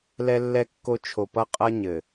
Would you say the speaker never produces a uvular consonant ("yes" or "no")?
no